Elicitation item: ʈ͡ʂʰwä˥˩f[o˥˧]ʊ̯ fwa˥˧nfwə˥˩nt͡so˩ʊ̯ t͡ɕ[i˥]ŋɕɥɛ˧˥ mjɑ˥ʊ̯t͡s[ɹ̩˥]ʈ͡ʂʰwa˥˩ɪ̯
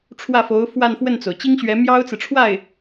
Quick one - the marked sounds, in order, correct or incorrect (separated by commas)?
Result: incorrect, correct, incorrect